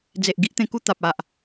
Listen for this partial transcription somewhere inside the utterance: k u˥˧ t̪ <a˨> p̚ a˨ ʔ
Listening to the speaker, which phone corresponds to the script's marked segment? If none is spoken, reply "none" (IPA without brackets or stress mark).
a˨